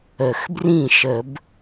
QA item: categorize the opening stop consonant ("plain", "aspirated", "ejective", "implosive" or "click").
plain